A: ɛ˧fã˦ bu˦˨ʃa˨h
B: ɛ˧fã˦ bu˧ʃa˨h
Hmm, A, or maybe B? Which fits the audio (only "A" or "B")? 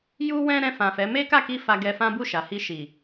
A